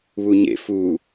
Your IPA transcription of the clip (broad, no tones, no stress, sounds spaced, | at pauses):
β u ɲ ḛ f u